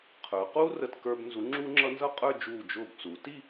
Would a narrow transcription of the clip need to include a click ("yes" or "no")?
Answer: yes